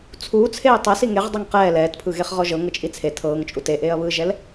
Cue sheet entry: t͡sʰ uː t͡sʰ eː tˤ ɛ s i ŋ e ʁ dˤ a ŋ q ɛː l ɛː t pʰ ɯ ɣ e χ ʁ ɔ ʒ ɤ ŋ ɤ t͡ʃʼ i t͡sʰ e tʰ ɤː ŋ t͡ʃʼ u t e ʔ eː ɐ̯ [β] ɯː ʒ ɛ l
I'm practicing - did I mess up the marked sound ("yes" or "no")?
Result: no